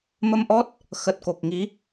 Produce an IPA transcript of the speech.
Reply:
m ə˧ m ʔ ɔ˦˥ t̚ | x ə˨˩ t̚ k o˨˩ k̚ ŋ i˨˦

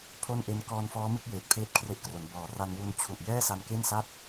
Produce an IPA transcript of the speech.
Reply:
pʰ o˥˩ n ʔ e˦˥ n k ɔː˧ n f ɔː˦˥ m ɯ˥˩ k̚ j eː˨˩ t̚ pʰ eː˦˥ t̚ kʰ r e˦˥ ʔ k r o˩˦ n b ɔː˨˩ r a˧ n w u˧ n t͡ɕʰ u˨˩ ʔ j ɛː˥˩ s a˧ n k e˥˩ n s a˥˩ t̚

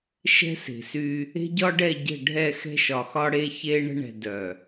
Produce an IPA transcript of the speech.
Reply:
ʃ ɛ̤˦ s e̤˨ s y˦ | e̤˦ ɟ ɒ˦ ɖ ɛ˦˨ ɟ ə̤˦˨ ɖʱ ɛ˦˨ x ɛ̤˦ ʃ ɒ˨ x ɒ˦ ɽ e˦ ç e˦ ɳ ə̤˦ ɳ ɛ̤˨ d œ˨

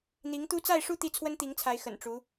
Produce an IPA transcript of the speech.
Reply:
n̪ i˧˥ ŋ t̪ u˥ t͡s a˥˧ ɪ̯ ʂ u˥˧ t̪ i˥˩ t͡sʰ w ə˥ n t̪ i˧˥ ŋ t͡sʰ a˧˥ ɪ̯ x ə̰˨˩ n ʈ͡ʂ u˧˥

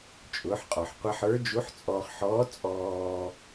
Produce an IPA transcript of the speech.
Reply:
t͡ʃʼ ʊː˩˧ ħ qʼ ɔ˩ ħ qʷ ɐ˧ ħ ə˞˧˥ d͡ʒ u˧˥ ħ t͡sʼ ɔː˧ χ ħ ɔː˧˥ t͡sʼ ɔː˧

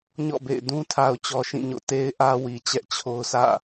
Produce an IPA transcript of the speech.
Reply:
ɲ ɔ̰˦˨ b ḛ˦˨ ɪ̯ d ũ˦ tʰ a˨ ʊ̯ t͡ɕ ɔ˨ ʃ ĩ˦˨ ɲ o̰˦˨ t e˨ ɪ̯ ʔ ä˨ w i˨ t͡ɕ ɛ˦ ʔ t͡ɕʰ o˦ ʊ̯ s ä̰˦˨

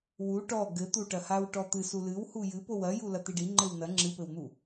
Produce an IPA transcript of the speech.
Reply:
w u ʈ ɔ ɡ ɘ t̪ u ʈ ɐ h a w ʈ ɔ t̪ ɨ s u l ɨ w h u j ɨ p o w ɐ j u l ɐ t̪ i ɖ i ŋ͡ǃ ɘ w n ɐ ŋ͡ǁ ɨ p ɘ w n̪ u

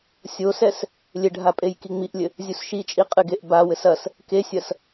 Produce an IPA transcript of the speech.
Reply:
sʲ o s ɛ s | lʲ ɘ ɖʱ a pʼ e j k i ŋ͡m i ʔ lʲ ɘ | zʲ u s ʃ i t͡ʃʼ i qʼ ɨ ɡ e ʔ b a w ɘ s ɐ s | k e sʲ ɐ s

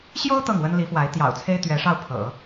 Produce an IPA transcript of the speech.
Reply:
ɕ j o˥ ʊ̯ t̪ ɤ˥˩ ŋ w ə˥ n l i˧˥ f w a˧˥ ɪ̯ t̪ j ɑ̰˨˩ ʊ̯ t͡sʰ e˥ ɪ̯ t̪ ɥ ɛ˧˥ ʂ ɑ˥˩ ʊ̯ pʰ ɤ̰˨˩˦

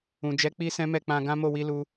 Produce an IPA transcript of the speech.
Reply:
ũ˨ d͡ʒ ɛ˨˦ k͡p i˧ s ɛ̃˦ m ɛ˦˨ k͡p ã˧ ɡ ã˦ m o˦˨ w i˧ l u˧

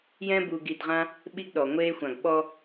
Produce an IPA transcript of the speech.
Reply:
j ɛ̃˦ b uː˨ ɡ i˨ d ʁ ã˦ | ɓ i˦ ɡ ɗ ɔ˩ ŋʷ eː˦ xʷ ã˨ ɡ ɓ ɔ˥

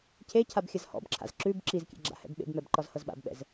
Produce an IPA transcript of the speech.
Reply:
cʰ e cʰ a b xʲ ɐ z h ɔ̰ b ǁʰ a̰ z ǁ ʉ b ǁ i z kʲ ḛ ɡ͡ǁ a̰ h ɛ̰ b ɓ ḛ b m ɛ b ǃ ɒ z h ɤ z ɓ a̰ b ɓ ɛ̰ z

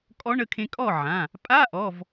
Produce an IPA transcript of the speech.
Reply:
kʼ ɔ˧˥ ɳ ə˩˧˩ kʰ ẽ˧ kʼ ɔ˥˨ ʕ ã˩˧˩ | pʼ a˧˥˧ ʔ ɔ˩˧˩ v

